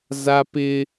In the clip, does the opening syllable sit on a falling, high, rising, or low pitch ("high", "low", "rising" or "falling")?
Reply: high